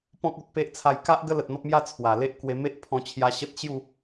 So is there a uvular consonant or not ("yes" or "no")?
no